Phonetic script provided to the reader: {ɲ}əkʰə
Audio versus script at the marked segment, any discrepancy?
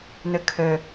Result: yes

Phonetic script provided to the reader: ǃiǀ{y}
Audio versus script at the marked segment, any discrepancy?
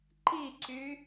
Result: no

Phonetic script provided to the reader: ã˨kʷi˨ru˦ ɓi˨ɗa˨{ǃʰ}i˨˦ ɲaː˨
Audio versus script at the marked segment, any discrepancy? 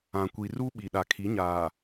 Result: yes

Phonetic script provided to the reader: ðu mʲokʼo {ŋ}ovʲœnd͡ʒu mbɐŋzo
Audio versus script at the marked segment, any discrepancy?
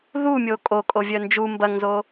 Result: yes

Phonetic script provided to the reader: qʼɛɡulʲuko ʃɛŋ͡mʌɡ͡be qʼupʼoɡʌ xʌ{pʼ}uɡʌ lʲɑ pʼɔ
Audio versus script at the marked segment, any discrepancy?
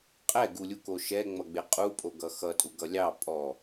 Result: yes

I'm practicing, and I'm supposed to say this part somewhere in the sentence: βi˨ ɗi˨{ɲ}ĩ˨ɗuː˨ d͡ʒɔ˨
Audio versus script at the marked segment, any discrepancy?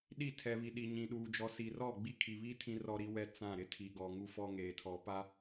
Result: no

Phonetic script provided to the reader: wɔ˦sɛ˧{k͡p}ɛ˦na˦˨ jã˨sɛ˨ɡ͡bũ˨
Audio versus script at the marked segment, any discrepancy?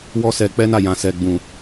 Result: no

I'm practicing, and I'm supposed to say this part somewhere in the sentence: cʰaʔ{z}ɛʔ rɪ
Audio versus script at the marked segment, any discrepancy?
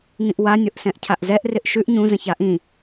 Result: no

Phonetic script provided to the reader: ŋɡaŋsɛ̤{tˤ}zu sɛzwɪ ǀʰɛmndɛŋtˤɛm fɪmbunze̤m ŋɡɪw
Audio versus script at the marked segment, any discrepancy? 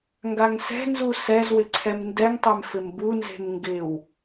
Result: yes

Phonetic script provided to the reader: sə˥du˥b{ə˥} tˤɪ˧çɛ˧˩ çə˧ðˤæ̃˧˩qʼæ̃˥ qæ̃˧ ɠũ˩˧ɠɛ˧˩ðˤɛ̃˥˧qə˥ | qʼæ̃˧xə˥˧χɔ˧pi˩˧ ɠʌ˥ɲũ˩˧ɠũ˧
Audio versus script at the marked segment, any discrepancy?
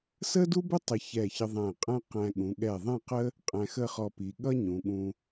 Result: yes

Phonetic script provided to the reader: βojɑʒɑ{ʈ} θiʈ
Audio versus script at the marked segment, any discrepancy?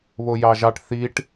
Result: no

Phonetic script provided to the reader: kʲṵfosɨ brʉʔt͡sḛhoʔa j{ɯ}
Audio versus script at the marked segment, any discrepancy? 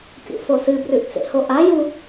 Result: yes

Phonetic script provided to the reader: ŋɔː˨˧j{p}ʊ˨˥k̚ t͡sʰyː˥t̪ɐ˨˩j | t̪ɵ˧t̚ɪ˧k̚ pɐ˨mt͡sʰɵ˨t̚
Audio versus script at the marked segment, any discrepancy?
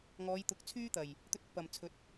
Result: yes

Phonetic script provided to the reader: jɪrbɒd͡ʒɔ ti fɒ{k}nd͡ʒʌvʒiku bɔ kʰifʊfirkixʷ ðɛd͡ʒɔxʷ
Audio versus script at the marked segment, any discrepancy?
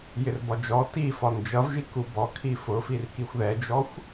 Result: yes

